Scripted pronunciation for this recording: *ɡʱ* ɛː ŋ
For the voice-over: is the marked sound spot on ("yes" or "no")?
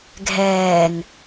yes